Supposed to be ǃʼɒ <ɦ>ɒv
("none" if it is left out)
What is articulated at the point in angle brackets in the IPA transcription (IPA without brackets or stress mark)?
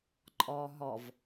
ɦ